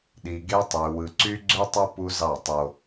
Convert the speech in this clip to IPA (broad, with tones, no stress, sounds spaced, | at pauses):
ɗ i˨ ɡ e˦ tˤ y˨ w ɯ˨ ǀ y˦ ɡ͡ǀ ø˦ tˤ o˦ p u˦ z ɑ˦˨ tˤ o˦